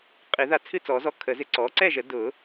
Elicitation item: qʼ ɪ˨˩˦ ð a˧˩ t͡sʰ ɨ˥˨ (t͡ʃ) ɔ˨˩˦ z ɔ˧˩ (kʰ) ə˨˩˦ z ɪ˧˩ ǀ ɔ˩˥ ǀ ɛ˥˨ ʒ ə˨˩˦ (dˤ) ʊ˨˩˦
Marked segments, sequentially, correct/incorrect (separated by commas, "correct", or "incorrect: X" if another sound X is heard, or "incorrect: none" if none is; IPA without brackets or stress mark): incorrect: t͡s, correct, incorrect: d